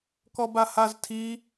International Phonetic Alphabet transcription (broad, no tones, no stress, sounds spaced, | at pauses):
k ɔ b a h a z tʰ i